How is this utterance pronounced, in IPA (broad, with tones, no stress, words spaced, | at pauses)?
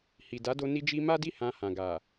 hi˨da˨˦do˧ ni˧d͡ʒi˧ ma˦di˦˨ hã˧hã˨ɡa˨